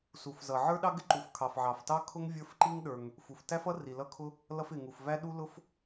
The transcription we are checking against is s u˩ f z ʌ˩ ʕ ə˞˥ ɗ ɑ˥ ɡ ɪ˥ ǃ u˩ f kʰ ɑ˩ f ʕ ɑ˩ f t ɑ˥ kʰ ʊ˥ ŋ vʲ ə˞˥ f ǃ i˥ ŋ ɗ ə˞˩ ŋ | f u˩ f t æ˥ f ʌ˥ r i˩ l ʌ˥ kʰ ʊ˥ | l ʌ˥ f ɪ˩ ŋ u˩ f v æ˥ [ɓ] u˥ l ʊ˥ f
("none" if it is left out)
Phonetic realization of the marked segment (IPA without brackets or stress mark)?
ɗ